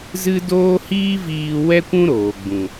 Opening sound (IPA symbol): z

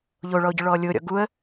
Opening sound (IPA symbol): ʎ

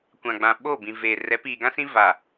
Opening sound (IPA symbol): kʷ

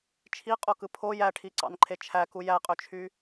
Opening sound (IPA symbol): t͡ʃʰ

